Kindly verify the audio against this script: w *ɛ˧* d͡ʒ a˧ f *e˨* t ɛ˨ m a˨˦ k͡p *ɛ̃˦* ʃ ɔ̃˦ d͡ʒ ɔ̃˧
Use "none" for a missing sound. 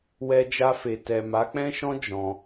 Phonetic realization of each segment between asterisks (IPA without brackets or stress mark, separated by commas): ɛ˧, e˨, ɛ̃˦